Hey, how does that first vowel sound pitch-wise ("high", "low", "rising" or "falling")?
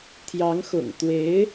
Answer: rising